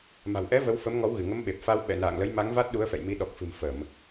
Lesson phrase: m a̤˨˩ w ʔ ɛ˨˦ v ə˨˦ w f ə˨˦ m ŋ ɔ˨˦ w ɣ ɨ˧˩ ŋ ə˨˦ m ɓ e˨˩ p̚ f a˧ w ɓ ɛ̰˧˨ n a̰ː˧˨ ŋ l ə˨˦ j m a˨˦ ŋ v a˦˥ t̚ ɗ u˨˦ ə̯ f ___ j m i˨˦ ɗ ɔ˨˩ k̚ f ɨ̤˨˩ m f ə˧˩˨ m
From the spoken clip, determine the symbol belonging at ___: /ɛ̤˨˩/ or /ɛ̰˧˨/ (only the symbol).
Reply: ɛ̰˧˨